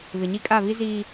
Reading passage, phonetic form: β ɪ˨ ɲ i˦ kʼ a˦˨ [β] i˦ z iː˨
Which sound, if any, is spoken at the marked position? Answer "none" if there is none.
β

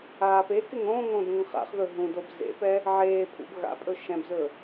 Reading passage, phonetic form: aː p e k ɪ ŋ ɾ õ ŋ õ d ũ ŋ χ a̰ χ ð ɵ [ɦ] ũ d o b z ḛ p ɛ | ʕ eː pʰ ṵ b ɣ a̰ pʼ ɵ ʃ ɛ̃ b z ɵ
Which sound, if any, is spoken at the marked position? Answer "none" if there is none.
ɦ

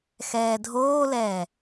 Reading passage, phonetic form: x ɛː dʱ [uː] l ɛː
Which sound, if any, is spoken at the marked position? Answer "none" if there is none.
oː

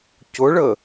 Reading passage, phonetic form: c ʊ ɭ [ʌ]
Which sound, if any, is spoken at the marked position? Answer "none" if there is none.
ə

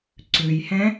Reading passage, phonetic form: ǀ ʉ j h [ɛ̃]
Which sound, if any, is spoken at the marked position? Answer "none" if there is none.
ɛ̃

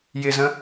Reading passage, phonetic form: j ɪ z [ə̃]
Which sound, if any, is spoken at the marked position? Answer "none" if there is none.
ə̃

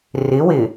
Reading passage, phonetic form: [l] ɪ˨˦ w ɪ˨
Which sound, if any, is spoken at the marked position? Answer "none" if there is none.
r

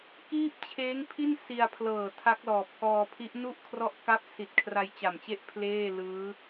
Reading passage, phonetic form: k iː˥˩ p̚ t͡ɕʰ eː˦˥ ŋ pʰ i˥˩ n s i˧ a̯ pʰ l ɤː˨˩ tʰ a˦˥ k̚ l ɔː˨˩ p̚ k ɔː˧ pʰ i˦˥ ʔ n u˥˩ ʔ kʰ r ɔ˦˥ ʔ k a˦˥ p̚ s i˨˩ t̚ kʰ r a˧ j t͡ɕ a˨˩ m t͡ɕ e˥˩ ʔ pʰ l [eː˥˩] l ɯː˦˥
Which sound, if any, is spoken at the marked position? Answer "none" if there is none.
eː˥˩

